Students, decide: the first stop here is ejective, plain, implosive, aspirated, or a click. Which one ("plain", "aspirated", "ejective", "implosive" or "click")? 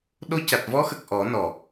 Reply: implosive